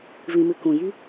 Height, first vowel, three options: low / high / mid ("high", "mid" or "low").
high